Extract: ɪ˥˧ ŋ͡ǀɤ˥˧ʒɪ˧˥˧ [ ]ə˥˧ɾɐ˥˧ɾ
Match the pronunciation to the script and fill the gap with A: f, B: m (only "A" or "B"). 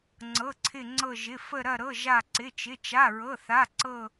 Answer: A